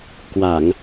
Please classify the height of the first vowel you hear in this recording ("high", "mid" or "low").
low